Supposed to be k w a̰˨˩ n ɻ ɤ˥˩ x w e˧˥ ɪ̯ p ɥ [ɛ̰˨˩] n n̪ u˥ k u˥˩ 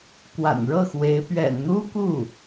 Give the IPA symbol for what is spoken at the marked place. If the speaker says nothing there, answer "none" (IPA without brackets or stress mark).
ɛ̰˨˩